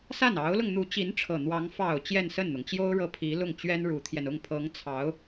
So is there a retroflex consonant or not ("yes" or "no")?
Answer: yes